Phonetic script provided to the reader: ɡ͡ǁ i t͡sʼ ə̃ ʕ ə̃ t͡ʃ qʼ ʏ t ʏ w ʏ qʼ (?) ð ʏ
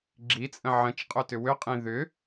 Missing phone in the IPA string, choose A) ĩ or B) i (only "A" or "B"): A